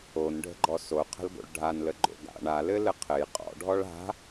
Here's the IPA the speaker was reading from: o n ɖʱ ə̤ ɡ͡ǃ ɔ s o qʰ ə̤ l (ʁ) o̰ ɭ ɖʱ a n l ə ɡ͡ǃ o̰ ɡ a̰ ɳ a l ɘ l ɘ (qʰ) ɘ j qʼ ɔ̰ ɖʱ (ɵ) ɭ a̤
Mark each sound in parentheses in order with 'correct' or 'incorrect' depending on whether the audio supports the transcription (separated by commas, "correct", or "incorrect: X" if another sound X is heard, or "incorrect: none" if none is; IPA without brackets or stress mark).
incorrect: ɡ, correct, incorrect: ɔ